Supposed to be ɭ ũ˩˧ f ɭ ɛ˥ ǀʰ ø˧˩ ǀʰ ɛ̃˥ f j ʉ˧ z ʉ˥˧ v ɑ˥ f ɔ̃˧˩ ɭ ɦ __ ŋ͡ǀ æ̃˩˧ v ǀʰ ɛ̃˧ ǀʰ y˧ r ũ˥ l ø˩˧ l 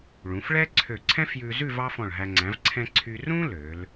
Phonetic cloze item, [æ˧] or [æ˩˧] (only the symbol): æ˧